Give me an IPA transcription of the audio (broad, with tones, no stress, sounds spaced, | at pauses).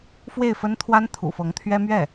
f w e˥˩ ɪ̯ f ə˥ n t̪ʰ w a˥ n t̪ʰ ṵ˨˩ f ɤ˧˥ ŋ t̪ʰ ɥ ɛ˥ m ɥ ɛ˥˩